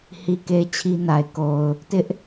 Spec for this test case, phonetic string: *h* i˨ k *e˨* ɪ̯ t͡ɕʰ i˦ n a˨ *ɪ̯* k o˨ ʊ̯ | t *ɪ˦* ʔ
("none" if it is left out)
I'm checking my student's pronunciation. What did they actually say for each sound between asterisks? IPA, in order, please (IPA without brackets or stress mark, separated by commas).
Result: h, e˨, ɪ̯, ɪ˦